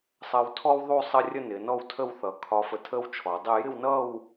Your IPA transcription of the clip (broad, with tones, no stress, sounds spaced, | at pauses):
sˤ ɜ˧ w tʰ ɔ˥ w ðˤ u˥˧ sˤ ə˥˧ rʲ ə˥˧ n ɪ˩˧ n ɔ˥˧ w tʰ ə˥˧ w θ ʌ˩˧ kʰ ɒ˧ f ə˧ tʰ ə˥ w t͡ʃʰ ɔ˩˧ dˤ ɪ˥˧ j ɪ˥˧ w n ʌ˥˧ w